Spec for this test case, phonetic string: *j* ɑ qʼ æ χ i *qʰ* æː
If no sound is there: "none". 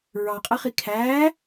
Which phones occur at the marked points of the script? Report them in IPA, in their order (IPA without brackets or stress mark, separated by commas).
ɹ, kʰ